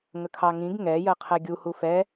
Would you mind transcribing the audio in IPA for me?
ŋ ə kʰ ɑ ŋ ĩ ɡ ŋ ɛ j ɜ qʰ ɛ ɡʲ u h u f ɛ

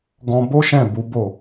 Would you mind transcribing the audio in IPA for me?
ɡ ɔ̃˧ b o˦ ʃ ɛ̃˦˨ b u˨˦ b o˦˨

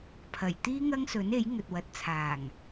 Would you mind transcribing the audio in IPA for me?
pʰ ɐ˨˩ j t̪ iː˥ ŋ ɐ˥ ŋ s ɵ˨˥ n e˨˥ j ŋ ɵ˨ t̚ w ɐ˨˥ t̚ t͡sʰ aː˨˩ ŋ

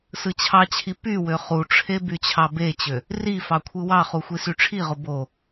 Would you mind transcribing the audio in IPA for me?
s ɯ t͡ɕʰ ɑ t͡ɕʰ i p y w ø χ u ʈ͡ʂʰ e b y t͡ɕʰ ɑ b e t͡ɕ ø | r i f ɑ kʷʰ ɯ w ɑ χ u xʷ i s y ʈ͡ʂʰ i ʁ o b o

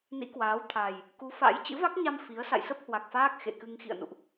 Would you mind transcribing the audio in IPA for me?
n ḭ˧˥ k w aː˨˦ w t̪ʰ a˨˩ j | k u˨˦ f a̰˧˥ j t͡ɕ ɨ̰˧˥ v a˦˥ k̚ ɲ a˧ m f i˨˦ ə̯ s a̰˧˨ j s ə˦˥ p̚ h w a˨˩ k̚ f aː˦˥ k̚ x ḛ˧˨ k ɨ˧ ŋ x ḭ˧˨ ə̯ n ṵ˧˨ ʔ

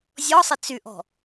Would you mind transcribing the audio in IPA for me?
zʲ ɔ sˤ ɪ t͡s y ʔ ɔ̤

